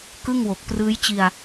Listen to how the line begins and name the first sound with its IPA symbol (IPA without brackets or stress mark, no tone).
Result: k